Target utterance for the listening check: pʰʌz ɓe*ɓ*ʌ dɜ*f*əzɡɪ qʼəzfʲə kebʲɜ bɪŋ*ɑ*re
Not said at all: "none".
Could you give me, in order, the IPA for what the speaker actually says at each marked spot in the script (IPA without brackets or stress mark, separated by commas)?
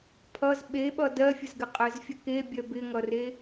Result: ɓ, fʲ, ʌ